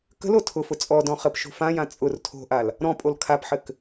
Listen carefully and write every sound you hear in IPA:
k ə̤ l o tʰ ʊ f ʊ t͡sʼ ɔ d ɔ̃ χ ə p ʃ o̤ f ã j ã t͡sʼ ʊ r tʰ o̤ ʔ a l | ɾ ɔ̃ pʼ o l kʰ a p ħ ɘ k

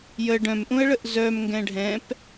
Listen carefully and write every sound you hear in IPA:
j ə ɖ œ̃ m ʔ ũ ə̯ ɭ ə ʔ z œ m ŋ ɡ ɛ̃ ɖʱ ɛ̃ p

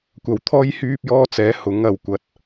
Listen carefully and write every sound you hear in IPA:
kʷ ɐ˨˩ w t̪ʰ ɔː˥ j h yː˥ p̚ j ɔː˥ t͡s ɛː˨˥ h ʊ˨˥ ŋ ɐ˨ w kʷ ɐ˧ t̚

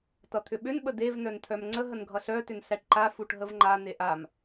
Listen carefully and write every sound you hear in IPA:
t ʌ t̪ʰ ʏ ɓ ʏ n ɓ ə d e v n œ n t̪ʰ œ m ŋ͡ǀ ə ɦ ə n ɡʱ ʌ ɬ œ t ʏ n ɬ æ ʈ ǃ a f u ʈ ɦ ə v ŋ͡ǃ a n e ʔ a m

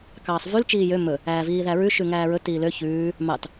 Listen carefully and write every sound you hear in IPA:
k ɑː sˤ v y l t͡ʃ iː j ø m ɵ | æː v iː ð æ ɹ ʉ ʃ ʉ ŋ æː ɹ ɵ t iː l ø ç ʉː | m ɑ t

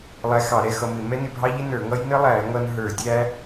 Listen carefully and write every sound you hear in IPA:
lˠ æ˧ x ɑ˧˩˧ ɾ ɛ˧ x ʌ˧ m ɪ˧˩˧ m ɛ˦˥ n ɪ˧ bʱ ɑ˦˥ ʎ ɪ˦˥ n ə˞˧˩˧ ŋ ʌ˦˥ j n ə˦˥ lˠ æ˧˩˧ ŋ ʌ˧ n ɦ ə˞˧˩˧ dʲ æ˦˥

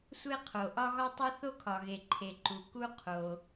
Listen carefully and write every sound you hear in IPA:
sʷ e˥ qʰ o˩ ʔ ɒ˥ ɣ ɒ˥ tˤ u˥ θ o˥ kʰ ɒ˩ ɣ e˩ ǃʰ e˩ ǃ u˩ k u˥ qʰ o˩

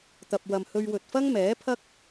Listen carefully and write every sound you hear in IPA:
t̪ ɐ˨ p̚ w ɐ˨ m h ɵ˧ ɥ w ɵ˨ t̚ f ɐ˥ ŋ m ɛː˨˥ pʰ ɐ˥ k̚

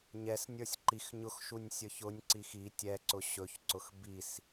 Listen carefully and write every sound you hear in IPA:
ɲ ɛ s nʲ ə˞ sʲ ǃ i x ɲ ʊ x ʃ u nʲ sʲ ə˞ ç ʊ nʲ ǀ i x i tʲ ɛ ǀ ʊ ɕ ɵ ç ǀ ʊ x b i s

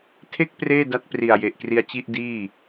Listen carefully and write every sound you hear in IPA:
tʰ e˥˩ k̚ p r eː˥˩ d a˦˥ t̚ p r i˨˩ a̯ j e˨˩ ʔ k r i˧ a̯ t͡ɕ i˥˩ ʔ d iː˥˩

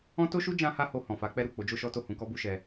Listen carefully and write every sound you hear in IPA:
ɔ̃˦ t o˦ ʃ u˦ d͡ʒ ã˧ h a˧ h o˨ h ɔ̃˨ f a˨˦ k͡p ɛ˦ ɾ u˦˨ k͡p o˨˦ d͡ʒ o˦ ʃ ɔ˦ t o˦˨ h ũ˧ k ɔ˦ b u˦ ʃ ɛ˧

